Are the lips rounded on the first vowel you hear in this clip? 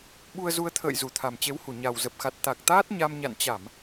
yes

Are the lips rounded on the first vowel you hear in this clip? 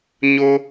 yes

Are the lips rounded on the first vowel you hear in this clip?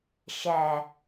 no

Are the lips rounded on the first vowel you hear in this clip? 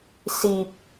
no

